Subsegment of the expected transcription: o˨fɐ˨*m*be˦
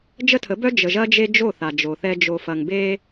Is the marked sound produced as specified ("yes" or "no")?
no